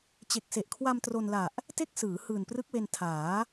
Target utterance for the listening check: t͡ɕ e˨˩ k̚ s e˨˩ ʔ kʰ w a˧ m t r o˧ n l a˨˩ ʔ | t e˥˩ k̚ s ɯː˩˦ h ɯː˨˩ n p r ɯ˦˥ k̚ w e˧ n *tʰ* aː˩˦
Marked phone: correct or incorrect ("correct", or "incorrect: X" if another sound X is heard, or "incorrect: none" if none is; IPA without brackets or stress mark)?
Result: correct